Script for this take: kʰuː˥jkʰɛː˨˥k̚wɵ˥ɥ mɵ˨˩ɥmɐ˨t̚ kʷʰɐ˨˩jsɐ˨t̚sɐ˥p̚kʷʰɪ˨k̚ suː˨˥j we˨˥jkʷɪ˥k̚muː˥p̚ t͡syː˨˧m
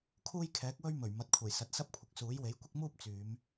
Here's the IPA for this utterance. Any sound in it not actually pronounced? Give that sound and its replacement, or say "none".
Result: none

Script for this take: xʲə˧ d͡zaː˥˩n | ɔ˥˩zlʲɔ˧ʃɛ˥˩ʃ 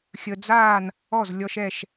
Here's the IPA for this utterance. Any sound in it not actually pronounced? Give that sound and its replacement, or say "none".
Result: none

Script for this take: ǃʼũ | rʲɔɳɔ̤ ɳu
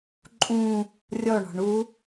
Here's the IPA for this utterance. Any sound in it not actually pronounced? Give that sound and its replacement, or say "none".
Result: none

